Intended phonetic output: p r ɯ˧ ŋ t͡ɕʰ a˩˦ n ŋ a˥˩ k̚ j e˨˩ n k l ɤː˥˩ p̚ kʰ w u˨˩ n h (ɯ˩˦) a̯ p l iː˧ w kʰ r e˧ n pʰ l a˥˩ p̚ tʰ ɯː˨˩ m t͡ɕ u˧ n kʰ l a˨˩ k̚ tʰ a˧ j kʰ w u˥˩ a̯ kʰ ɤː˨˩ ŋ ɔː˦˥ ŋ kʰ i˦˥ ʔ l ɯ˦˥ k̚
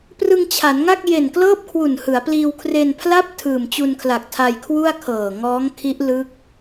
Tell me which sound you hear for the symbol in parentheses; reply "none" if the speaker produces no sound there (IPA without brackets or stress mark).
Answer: ɯ˩˦